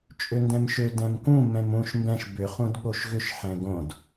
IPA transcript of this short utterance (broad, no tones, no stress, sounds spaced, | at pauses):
t͡ʃʼ ø n d ɛ̃ m ʃ ø d ɛ̃ m k ũ m ɛ̃ m ũ ʃ m b ɛ̃ ʃ b ʏ χ ũ d ɠ o ʃ ɣ ʏ ʃ ħ ɛ̃ ɡ õ d